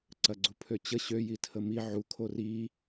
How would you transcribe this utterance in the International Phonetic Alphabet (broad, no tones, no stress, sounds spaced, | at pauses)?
ǀ ɐ ɡ͡ǀ u pʰ ø t͡ɕ ə ɕ ø j i tʰ ə m i ʕ u kʰ o r i